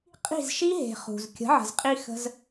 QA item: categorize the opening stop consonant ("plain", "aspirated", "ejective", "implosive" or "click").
ejective